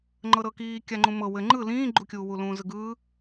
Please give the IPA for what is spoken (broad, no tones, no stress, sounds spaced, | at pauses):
ŋ͡ǃ ɤ ɾ ɤ k iː kʲ a ŋ͡ǃ ũ m ɤ w ɘ ŋ͡ǃ ɯ l ĩː ɡ͡ǃ u kʲ uː w u l ũː z ɯ ɡ ɯː